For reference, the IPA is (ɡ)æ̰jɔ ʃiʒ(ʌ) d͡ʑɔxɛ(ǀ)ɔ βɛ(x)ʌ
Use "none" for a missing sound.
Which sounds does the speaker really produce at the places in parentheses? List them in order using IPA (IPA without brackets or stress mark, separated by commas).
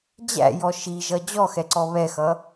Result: d͡ʑ, ʌ, ǀ, x